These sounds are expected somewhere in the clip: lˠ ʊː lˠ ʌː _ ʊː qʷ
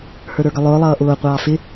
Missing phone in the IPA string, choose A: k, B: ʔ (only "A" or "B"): B